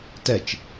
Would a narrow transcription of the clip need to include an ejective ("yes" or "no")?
no